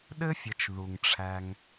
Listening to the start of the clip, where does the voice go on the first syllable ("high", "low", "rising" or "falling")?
high